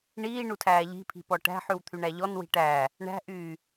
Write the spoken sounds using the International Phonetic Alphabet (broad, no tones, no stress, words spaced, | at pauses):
ɳiːɳutʰæː ʎi̤pʰi̤ pɔʈæ̤ ħʉwt̪ʰyɳæʎɔn wi̤ʈæː | ɳæ̤ʔyː